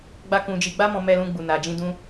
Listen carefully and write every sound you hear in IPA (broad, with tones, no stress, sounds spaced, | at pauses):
ɡ͡b a˧ k ũ˨ d͡ʒ i˨ ɡ͡b a˧ m ɔ̃˨ m ɛ˨ l ũ˨ ɡ͡b u˨ n a˨ d͡ʒ ĩ˧ d ũ˧